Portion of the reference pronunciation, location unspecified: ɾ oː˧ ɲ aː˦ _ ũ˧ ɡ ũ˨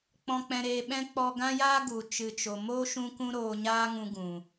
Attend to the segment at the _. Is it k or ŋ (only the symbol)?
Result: ŋ